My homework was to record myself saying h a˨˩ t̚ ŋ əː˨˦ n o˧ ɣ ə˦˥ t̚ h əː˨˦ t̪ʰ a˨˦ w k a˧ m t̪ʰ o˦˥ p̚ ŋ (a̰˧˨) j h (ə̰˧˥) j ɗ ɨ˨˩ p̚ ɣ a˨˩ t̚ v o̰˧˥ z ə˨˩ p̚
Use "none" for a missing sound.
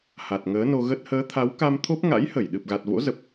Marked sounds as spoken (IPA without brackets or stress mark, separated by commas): a̰˧˥, ə˧˩